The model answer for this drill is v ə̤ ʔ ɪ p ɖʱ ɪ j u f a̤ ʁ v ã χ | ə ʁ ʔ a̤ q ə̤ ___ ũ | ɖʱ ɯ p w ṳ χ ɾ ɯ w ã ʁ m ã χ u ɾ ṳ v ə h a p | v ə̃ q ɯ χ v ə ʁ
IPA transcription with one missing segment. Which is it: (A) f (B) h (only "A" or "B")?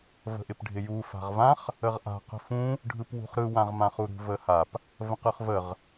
A